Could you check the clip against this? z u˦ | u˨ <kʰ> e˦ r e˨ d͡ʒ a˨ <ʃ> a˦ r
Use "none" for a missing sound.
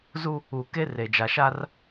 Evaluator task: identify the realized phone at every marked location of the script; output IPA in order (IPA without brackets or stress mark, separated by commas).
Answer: k, ʃ